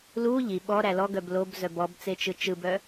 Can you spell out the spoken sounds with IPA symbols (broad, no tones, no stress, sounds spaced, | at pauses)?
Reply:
l u ʎ i ɓ ɔ ɾ æ l ɔ ɡ œ b l o b z œ b ɔ b t͡s e t͡ʃ ɯ t͡ʃ ɯ b œ